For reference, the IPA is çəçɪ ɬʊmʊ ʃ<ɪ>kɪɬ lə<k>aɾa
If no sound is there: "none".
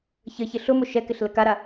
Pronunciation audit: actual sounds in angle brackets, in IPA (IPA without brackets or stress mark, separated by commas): ɛ, k